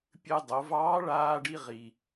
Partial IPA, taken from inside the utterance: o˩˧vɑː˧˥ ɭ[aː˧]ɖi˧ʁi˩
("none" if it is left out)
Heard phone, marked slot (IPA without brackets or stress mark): aː˧